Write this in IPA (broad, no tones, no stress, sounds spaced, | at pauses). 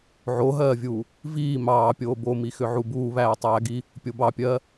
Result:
ʕ o ɦ ɜː vʲ uː | v iː m ɑː pʲ oː b o m i x ʏ ʕ u b uː β æː tˤ æː ɡ i | pʲ o b ɑ pʲ ɜː